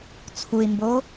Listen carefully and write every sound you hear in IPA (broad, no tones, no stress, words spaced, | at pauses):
t͡sʰui̯mbo